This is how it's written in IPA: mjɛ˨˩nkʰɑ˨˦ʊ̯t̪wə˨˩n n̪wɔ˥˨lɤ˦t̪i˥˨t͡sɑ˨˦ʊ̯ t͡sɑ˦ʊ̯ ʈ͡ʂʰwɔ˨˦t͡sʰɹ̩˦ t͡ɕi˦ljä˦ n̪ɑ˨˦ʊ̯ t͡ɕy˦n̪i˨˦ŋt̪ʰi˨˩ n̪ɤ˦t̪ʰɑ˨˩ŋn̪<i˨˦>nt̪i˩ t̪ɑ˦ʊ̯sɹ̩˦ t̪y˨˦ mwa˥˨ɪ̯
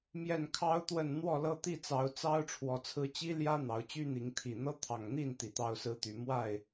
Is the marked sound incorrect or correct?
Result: incorrect